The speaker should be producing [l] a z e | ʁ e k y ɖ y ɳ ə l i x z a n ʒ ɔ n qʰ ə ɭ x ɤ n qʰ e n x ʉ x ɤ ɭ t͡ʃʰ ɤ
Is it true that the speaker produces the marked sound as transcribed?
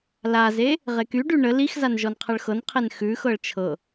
yes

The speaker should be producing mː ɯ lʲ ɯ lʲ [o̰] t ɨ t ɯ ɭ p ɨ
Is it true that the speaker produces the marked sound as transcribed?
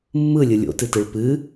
yes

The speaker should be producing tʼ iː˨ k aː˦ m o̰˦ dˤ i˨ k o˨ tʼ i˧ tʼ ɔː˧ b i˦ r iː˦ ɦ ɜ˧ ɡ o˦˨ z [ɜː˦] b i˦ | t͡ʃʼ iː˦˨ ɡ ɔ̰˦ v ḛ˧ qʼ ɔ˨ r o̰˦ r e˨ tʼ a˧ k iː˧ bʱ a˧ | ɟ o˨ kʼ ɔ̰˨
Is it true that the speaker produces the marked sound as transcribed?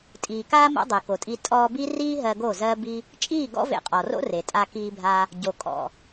yes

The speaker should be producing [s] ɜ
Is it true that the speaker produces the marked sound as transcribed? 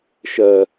no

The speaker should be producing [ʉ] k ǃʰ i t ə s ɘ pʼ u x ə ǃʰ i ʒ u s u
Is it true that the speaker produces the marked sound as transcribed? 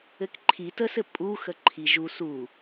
no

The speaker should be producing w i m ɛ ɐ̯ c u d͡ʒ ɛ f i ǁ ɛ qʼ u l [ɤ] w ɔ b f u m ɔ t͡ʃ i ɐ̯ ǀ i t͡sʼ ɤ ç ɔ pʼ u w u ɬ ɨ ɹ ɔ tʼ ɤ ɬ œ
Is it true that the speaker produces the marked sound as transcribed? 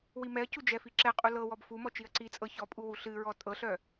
yes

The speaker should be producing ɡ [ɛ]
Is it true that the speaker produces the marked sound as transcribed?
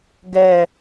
yes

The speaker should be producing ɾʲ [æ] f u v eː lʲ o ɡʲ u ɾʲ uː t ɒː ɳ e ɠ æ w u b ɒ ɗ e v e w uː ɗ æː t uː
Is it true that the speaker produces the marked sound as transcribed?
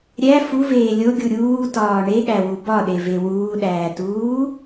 yes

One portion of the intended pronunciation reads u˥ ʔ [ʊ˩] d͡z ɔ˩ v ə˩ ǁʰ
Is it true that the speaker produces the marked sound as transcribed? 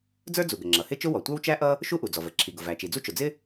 no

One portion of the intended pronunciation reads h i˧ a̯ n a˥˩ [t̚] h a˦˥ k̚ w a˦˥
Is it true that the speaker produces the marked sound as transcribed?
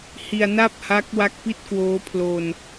no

